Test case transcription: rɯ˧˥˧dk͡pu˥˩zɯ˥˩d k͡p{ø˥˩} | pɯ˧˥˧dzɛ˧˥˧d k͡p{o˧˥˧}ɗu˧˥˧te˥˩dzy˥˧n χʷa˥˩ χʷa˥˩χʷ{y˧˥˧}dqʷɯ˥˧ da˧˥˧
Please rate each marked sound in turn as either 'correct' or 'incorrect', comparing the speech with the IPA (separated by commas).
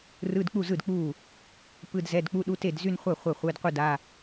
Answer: incorrect, incorrect, incorrect